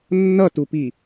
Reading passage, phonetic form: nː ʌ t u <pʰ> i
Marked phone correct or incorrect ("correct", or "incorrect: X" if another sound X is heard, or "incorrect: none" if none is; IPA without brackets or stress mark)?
incorrect: p